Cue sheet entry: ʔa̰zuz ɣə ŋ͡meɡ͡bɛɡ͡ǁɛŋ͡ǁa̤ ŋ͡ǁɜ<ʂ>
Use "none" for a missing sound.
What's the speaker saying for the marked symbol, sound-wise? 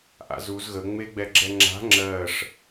ʂ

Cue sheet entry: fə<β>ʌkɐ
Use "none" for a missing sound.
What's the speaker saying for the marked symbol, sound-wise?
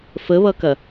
β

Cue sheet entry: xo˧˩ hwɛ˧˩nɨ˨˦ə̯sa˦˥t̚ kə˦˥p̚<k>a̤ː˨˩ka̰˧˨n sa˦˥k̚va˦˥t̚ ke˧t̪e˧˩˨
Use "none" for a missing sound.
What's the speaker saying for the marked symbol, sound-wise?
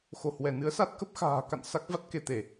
x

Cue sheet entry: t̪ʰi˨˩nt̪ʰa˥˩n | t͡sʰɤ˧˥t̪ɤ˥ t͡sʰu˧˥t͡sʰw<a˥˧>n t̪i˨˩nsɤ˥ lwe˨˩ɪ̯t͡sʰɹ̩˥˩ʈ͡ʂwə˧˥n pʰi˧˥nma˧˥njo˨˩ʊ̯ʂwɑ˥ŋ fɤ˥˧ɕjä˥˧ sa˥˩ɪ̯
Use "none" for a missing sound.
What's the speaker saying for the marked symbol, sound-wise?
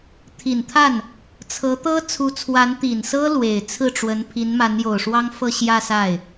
a˧˥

